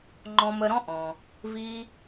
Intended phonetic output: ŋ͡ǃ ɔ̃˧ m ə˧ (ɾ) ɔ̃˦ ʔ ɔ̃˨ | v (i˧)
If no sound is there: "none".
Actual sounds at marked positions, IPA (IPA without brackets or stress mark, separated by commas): ɾ, i˧